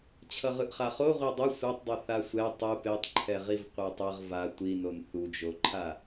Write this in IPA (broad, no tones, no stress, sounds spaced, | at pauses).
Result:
t͡ɕʰ ʌ ʁ ɯ ʔ χ a χ o ʁʷ ɛ dˤ ʌ sʷ a tˤ dˤ ʌ θ a sʷ ɛ tˤ u p e tˤ ǃʰ ɛ ʁ i v qʷ a tˤ ʌ ʁ v a tʷ i n o n θ u d͡ʒ o ǃʰ a